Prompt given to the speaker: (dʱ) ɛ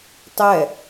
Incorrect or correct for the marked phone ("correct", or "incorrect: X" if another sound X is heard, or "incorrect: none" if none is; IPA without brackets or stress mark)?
incorrect: tˤ